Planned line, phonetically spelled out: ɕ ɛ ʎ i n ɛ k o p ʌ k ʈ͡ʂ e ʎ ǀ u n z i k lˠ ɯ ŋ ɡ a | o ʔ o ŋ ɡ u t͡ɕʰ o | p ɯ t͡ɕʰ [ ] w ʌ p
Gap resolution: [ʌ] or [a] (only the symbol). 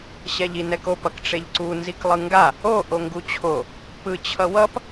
ʌ